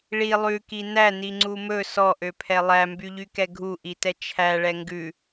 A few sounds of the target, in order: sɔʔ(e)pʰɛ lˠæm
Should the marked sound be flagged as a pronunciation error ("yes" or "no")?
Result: yes